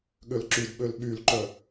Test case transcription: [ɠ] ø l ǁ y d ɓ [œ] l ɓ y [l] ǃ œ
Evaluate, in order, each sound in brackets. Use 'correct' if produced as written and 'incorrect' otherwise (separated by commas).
correct, incorrect, correct